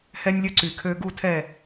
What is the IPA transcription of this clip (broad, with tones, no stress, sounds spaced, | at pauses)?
h ɛ˦ nʲ lʲ ɵ˦ ǀ y˨˩ kʰ ø˦ ɡ u˦˨ tʰ ɛ˦˨